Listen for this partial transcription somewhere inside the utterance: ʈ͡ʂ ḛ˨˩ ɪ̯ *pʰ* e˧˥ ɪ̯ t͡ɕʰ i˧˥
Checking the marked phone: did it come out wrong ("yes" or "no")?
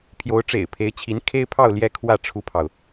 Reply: no